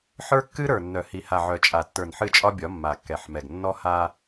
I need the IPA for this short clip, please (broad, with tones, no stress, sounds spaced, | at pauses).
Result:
ħ ə˞˦ kː ɨ˦ ɾ ə˞˨ nː œ˨ h i˨ h a˨ ʕ œ˨ t͡ʃʼ a˨ tː ə˞˨ n ħ ɨ˦˨ t͡ʃʼ ɒ˦ bʲ ɒ˨˦ mː a˨ kː ɛ˨ ħ m ɛ˨ ɡ nː ɔ˦ h a˦